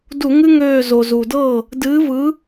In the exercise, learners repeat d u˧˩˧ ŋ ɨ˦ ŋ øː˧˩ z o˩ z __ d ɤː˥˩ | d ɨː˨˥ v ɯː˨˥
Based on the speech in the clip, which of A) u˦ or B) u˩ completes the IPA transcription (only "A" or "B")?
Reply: B